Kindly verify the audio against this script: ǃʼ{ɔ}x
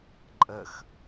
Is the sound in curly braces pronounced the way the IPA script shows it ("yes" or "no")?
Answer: no